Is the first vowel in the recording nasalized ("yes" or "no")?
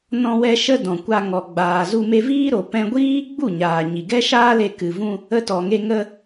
yes